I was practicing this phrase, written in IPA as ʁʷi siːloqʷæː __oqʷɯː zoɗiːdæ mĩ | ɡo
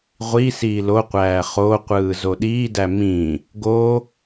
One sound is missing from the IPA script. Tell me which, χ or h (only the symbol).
χ